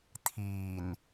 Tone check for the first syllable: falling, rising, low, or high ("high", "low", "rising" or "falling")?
low